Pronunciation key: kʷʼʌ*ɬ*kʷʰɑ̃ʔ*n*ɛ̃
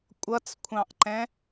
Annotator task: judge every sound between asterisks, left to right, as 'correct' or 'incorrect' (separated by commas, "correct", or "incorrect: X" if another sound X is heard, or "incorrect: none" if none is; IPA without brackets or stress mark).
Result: incorrect: t͡s, incorrect: ǃ